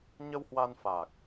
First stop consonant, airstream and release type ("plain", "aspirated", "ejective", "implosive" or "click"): plain